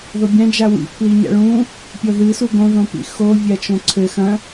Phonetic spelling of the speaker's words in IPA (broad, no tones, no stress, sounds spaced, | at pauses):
ð o bʲ ã d͡ʒ a w ḭ pʰ l i ɲ a̰ ɭ ũ | pʲ ɔ ð ɨ s u ɡ õ ð õ p ḭ x o vʲ a t͡ʃ õ ǀʰ ɘ x ɐ̃